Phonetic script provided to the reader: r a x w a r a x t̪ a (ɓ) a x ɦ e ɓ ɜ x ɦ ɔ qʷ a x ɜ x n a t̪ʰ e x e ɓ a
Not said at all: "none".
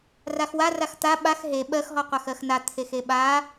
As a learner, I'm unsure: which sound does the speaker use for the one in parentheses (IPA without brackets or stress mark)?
ɓ